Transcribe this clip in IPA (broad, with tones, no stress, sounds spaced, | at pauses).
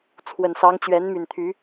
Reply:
t͡sʰ w ə˨˩ n s ɑ˧˥ ŋ t͡ɕ ɥ ɛ˧˥ n m y˨˩ n t̪ʰ y˧˥